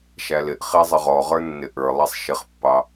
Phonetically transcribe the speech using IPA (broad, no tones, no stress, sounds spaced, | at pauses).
ʃ æ l ɪ ʔ χ i zˤ ə ʁ ɔ ʁ ə˞ nː ɪ ʔ ə˞ lˠ ɛ sˤ ʃ ɪ χ pː ɑ